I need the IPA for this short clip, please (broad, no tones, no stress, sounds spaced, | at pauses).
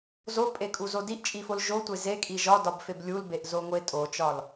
z o pʼ e kʼ u z o d i ʔ t͡ʃʼ i f o l ʒ o tʷ e z e kʼ i ʒ ɒ d ɒ b f e b lʲ u l b e ʔ z o ŋʷ e tʼ o t͡ʃ ɒ l